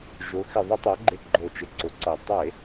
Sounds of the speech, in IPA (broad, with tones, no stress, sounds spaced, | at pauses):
ʒ ʊ˩˧ x ɪ˨˩ ðˤ ɪ˧˩˧ tˤ a˩˧ ɡ͡ǃ e˨˩ ɡ͡ǃ o˨˩ t͡ʃ ɪ˨˩ ǀ ʊ˩˧ ǀ ɔ˨˩ tˤ e˧˩˧